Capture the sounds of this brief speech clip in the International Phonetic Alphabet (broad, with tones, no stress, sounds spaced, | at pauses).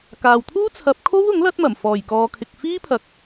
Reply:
k aː˨ w t̪ʰ uː˥ t͡sʰ ɐ˨˥ p̚ kʰ o˥ w ʊ˨˥ ŋ l ɐ˥ t̚ m ɐ˨˩ m f ɔː˨˩ j k ɔː˨ kʰ ɪ˨ k̚ f iː˥ pʰ ɐ˨ k̚